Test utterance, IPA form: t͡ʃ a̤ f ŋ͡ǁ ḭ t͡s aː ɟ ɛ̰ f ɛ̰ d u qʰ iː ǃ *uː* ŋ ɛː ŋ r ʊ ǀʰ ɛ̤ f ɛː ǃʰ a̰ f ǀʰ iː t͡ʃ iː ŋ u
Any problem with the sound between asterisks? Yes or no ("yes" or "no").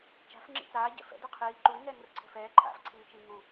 no